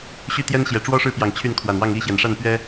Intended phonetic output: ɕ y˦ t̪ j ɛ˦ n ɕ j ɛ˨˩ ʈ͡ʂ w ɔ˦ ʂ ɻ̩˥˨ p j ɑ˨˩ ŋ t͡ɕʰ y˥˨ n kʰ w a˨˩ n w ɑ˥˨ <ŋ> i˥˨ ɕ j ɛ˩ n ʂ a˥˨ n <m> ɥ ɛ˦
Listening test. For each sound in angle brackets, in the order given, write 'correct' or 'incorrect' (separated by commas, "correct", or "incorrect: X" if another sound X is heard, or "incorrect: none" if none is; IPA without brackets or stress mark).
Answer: correct, incorrect: p